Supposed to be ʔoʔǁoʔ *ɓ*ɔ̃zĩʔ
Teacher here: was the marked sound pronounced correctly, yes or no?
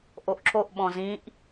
yes